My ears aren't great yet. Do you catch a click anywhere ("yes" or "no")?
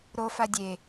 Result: no